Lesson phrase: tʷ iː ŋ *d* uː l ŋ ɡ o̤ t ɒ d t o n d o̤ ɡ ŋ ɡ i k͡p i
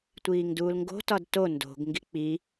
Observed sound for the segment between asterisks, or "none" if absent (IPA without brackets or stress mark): d